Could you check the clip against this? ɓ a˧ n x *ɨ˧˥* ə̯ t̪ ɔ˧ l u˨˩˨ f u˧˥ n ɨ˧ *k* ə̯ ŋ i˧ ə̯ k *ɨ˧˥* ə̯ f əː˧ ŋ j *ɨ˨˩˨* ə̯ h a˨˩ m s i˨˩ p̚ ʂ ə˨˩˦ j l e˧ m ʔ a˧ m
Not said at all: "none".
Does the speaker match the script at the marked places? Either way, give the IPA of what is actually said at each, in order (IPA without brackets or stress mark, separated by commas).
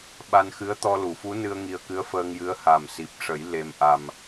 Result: ɨ˧˥, none, ɨ˧˥, ɨ˧˥